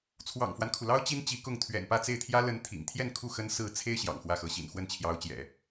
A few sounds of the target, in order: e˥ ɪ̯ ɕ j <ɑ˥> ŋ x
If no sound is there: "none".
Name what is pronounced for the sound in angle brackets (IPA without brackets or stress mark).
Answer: ɑ̰˨˩